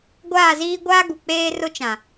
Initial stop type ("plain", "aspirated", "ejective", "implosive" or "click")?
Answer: plain